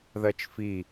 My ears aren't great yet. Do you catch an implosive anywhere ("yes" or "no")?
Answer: no